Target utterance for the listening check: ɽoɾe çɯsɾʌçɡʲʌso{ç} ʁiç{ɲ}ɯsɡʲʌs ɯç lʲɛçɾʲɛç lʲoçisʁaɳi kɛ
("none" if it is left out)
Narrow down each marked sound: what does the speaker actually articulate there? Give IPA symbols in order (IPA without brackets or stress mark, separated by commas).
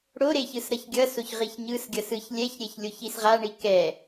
ç, ɲ